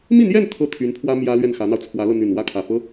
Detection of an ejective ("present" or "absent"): absent